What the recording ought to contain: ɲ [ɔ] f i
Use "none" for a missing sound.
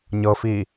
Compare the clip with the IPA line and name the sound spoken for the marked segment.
ɤ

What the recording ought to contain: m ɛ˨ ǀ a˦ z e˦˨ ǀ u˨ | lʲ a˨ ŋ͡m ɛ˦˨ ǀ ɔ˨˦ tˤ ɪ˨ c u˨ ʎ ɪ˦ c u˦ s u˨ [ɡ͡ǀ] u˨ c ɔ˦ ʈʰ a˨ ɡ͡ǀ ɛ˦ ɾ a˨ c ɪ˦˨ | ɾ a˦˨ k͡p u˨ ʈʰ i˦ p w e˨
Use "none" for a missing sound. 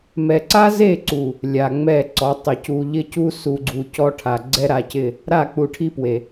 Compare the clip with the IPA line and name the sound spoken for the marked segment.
ɡ͡ǀ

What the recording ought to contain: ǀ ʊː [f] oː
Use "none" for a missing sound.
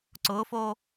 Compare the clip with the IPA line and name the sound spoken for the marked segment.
f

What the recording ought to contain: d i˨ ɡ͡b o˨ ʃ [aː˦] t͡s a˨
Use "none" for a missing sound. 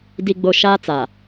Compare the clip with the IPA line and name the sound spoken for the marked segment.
aː˦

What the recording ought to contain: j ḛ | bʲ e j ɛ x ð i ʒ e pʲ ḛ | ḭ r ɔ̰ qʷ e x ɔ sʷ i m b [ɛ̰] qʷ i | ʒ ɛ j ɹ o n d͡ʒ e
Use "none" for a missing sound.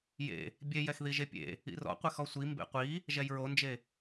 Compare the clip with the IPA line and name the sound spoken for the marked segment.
ḛ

